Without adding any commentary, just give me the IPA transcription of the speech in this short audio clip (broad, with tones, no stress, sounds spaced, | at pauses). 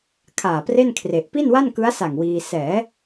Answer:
kʰ aː˨˩ p r e˥˩ n kʰ r e˨˩ ʔ p i˥˩ n w a˥˩ n k ɯ˦˥ a̯ s a˨˩ ŋ w iː˧ s ɛː˩˦